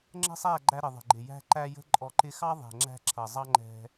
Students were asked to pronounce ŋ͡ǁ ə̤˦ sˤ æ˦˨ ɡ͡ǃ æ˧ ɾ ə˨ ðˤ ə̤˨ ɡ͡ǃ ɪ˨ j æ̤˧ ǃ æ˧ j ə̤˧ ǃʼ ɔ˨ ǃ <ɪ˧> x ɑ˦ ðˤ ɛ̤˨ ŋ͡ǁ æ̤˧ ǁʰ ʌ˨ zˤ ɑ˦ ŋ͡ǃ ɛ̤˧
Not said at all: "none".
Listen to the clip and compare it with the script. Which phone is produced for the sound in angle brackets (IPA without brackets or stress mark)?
ɪ˧